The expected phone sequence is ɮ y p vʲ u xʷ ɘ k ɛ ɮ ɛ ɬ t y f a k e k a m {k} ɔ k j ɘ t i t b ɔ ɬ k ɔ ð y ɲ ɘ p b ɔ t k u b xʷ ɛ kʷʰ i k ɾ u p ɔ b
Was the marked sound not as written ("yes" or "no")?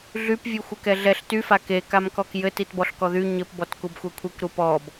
no